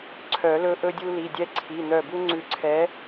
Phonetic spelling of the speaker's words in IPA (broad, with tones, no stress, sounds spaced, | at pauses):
ǀʰ œ˨˩˦ l ɵ˦ ʔ ɵ˦ dʲ u˦ l i˩˧˩ dʲ ɛ˦ ǀʰ i˩˧˩ n̪ œ˧˩ b u˦ ŋ͡ǀ ʉ˧˩ ǀʰ ɛ˨˥